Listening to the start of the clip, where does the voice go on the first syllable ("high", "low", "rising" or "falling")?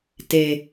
low